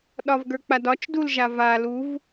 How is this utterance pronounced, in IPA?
ɗ ɒ v ɡ ə˞ k͡p a d ɒ t͡ʃ d u l ʒ a v a l u v

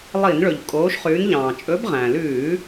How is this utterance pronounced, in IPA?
lˠ i˧˩˧ n ɭ ɵ˩ ʎ kʼ oː˨˦ ʃ χ ʉ˨˦ n ʎ ɑ̃ː˩ t͡ʃʼ ɵ˨˦ b ʁ æ̃˩ l ʉː˧˩˧

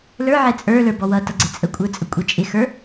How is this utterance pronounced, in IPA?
l ə˞ ʕ ɛ t͡sʼ ə˞ l ə˞ b ɔ w ʌ t ʌ ɡ͡ǀ ɛ t͡sʼ ə kʷʼ ə˞ t͡sʼ ə kʷʼ ɛ t͡ʃʼ ɪ x ə˞

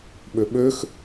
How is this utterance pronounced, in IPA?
ɓ ø ɓ ø x

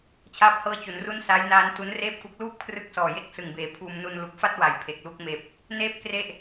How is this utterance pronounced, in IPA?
t͡ɕʰ aː˥˩ p̚ h ɤː˥˩ t͡ɕ u˩˦ n r u˥˩ n s a˦˥ j n aː˦˥ n t u˦˥ n r eː˥˩ p̚ k u˦˥ k̚ l uː˥˩ p̚ kʰ r ɯ˦˥ k̚ s ɔː˨˩ j e˥˩ k̚ s ɯ˨˩ ŋ b eː˩˦ pʰ uː˧ m n u˧ n l u˨˩ k̚ f a˥˩ t̚ w a˨˩ j pʰ e˨˩ k̚ l u˥˩ k̚ m eː˨˩ p̚ | n eː˥˩ p̚ k r e˥˩ ʔ

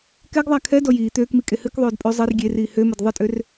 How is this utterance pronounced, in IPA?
k ɛ ɡ ðˤ a kʰ ɛ d ɔ j iː t̪ øː k m i kʼ e h ɨ k ðˤ øː d pʼ ø zˤ e r ɡʲ e r iː h ø m ə d ðˤ ɨ tʼ ø r

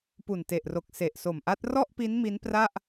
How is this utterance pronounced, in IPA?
p u˨˩ n t e˨˩ ʔ r o˨˩ k̚ s e˨˩ ʔ s o˨˩ m ʔ a˦˥ t̚ r ɔ˥˩ ʔ p i˦˥ n m i˦˥ n p r a˥˩ ʔ

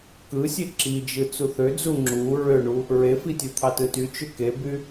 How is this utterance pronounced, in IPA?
k ɯ sʲ e ǁ i d͡ʒ ɯ t͡s u θ ø d͡z u ŋ͡ǁ u ɹ ø ɳ u | ɹ e f i tʲ ɯ t̪ʰ ɑ t ɯ t y t͡ʃ ø k e b y

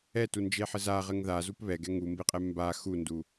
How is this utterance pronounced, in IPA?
ɛ t u n d͡ʒ e ħ ɘ z a ʁ ɘ ŋ ð a z u p β ɛ ɡ ɛ ŋ u m b e qʼ ɛ m b a x u n d u

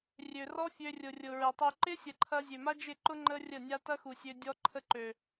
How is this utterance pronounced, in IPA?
rʲ ø˨ r ɔ˦ fʲ ø˧ rʲ ʊ˨ rʲ ʊ˨ ɹ ɪ˨ tˤ u˧ ǃ ɪ˦ sʲ ə˨ ǃʰ ɐ˧ zʲ ø˨ m a˦ d͡ʒ ɪ˦˨ ǃ ʊ˦ ŋ͡ǃ ə˦ rʲ ə˦˨ nʲ a˦ t ɐ˦ x u˨ sʲ ø˧ dʲ ɔ˦ ǃʰ ə˦ ǃ ø˨

